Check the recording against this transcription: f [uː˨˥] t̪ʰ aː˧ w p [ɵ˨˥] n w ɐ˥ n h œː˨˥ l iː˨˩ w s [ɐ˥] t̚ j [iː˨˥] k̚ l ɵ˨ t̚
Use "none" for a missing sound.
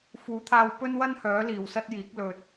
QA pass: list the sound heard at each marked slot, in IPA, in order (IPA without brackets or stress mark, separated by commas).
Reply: uː˨˥, ɵ˥, ɐ˥, iː˨˥